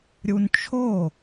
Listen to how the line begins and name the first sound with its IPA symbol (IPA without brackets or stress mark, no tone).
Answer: ɾʲ